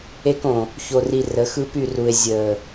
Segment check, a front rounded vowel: present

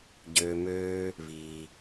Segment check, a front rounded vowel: present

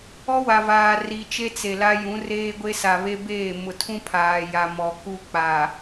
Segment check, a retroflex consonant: absent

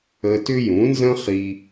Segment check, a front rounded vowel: present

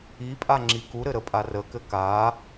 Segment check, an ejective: present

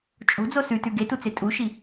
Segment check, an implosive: absent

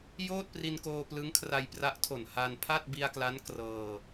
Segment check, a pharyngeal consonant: absent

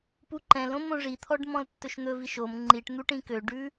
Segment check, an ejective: absent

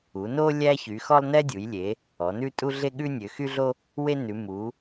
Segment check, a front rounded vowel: present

